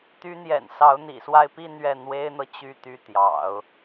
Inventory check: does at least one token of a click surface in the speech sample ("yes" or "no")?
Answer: no